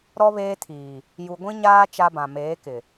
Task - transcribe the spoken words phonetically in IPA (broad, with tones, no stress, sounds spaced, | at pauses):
ɾ ɔ˦ β eː˦ tʰ iː˨ | j u˨ ɡʷ ĩ˦ ɲ aː˦ t͡ʃ a˦ b ã˨ m eː˨˦ k ɪ˨